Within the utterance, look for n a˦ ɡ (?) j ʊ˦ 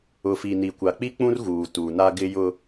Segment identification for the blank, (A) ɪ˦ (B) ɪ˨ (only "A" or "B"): A